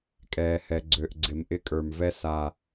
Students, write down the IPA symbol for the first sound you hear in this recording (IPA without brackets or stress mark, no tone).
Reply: kʼ